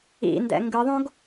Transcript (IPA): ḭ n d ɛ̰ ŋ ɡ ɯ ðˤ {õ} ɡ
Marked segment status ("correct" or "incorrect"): correct